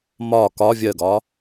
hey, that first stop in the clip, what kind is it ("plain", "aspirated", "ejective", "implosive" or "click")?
plain